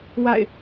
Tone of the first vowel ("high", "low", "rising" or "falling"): falling